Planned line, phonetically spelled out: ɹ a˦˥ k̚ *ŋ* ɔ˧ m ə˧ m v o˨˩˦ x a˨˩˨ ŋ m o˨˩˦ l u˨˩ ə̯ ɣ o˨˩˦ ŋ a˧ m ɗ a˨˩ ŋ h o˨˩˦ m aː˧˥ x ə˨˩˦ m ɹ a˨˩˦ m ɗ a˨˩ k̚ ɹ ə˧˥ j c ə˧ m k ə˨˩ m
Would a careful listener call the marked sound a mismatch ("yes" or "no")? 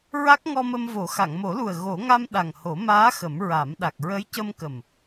no